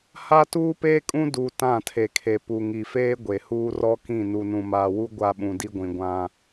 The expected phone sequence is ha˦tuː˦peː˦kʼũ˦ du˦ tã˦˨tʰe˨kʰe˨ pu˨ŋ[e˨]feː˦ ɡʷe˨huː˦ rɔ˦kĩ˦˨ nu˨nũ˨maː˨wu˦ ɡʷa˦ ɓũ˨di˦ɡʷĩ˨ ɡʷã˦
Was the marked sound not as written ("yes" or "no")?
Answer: yes